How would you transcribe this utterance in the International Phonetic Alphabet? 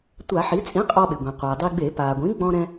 tʷ a˧˩˧ ħ i˩˥ t͡sʼ ĩ˩˥ qʼ ɔ˧ ɓ ɪ˩ ɡʷ ĩ˩ qʷ ɛ˩ dˤ i˧ ɡ͡b e˧˩˧ p a˩ ɡʷ ĩ˩˥ ɡ͡b ɔ̃˧ ɾ ɛ̃˧

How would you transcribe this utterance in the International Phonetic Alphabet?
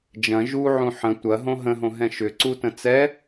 d͡ʒ ɐ̃ ʒ u ʕ ũ ħ ə̃ tʷ ɐ ɦ õ ɦ ə̃ ɦ õ ɦ ɛ̃ ʃ ʏ ǀ u t ə̃ t͡s ɛ

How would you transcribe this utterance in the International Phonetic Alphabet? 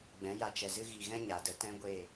ɡ͡b ɛ̃˨˦ j a˧ t͡ʃ ɛ˨ z ɨ˦ ɣ i˨ ɣ ɛ̃˦ ɲ a˨ d ə˧ t ɛ̃˦ ɡʷ eː˦˨

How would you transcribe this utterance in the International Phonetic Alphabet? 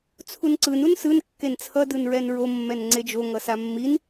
t͡sʰ u n ǀ ɯ n u n s ɯ n kː e n t͡sʰ ʌ d ɯ n ɹ ɛ n ɹ o mː ɛ n ŋ͡ǀ e d͡ʒ o ŋ ʌ s a mː i n

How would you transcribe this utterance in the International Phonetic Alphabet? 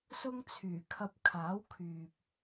s ʊ˥ ŋ t͡sʰ yː˨˩ kʰ ɐ˧ p̚ kʰ aː˨˥ w kʰ yː˨ p̚

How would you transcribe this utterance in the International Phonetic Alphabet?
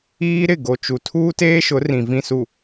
iː˦ ɾ ɪ˦˨ ɡ o˨ t͡ʃ u˨ tʰ uː˦ t eː˦ ʃ ʊ˨˦ r ĩ˨ v ĩ˨ s u˨

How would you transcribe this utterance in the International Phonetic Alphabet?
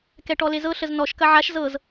k ɛ ʈ ɔ l e z ɤ ɬ ə z n ɔ ʃ k ɐ ʕ a ʃ z ɤ z

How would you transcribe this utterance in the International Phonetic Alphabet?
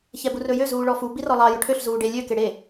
ç ɛ b u r ɵ j ø z uː ɭ ɔ f u b i r ɔ lˠ ɑ j ɵ ʈʰ ø ɬ z uː ɖ e lʲ ø k e ɽ e

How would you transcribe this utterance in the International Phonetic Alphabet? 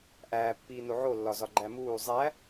ʔ æː pː iː n o ʕ o lː ɒ z ɒ ɡ͡ǃ æ m uː zˤ æ

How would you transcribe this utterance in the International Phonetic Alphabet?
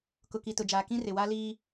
k ʊ˨ k i˨ t ʊ˨ d͡ʒ aː˨ k ĩ˦ r ɪ˨ w a˦ l iː˦

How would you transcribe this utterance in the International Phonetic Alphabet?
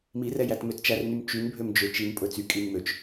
m i r ɛ j æ t m ø t t͡ʃ æ r n y m t͡ʃ y n bʱ ø m d͡ʒ ø t͡ʃ i n pʼ ɵ t͡s y kʼ i n m ø t͡ʃ

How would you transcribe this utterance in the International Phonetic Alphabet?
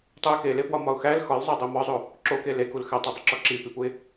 tˤ u ɪ̯ k e l e p w ɒ m ɒ ʊ̯ x æ l x ɒ l zˤ æ dˤ e m ɒ zˤ o | ǁ o k e l e k u l x æ tˤ o dˤ u ǁ ɒ ǁ i p i p u ɪ̯

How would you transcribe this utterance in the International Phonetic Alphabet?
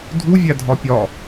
dʱ u vʲ æ dʱ ɒ pʲ ɒ

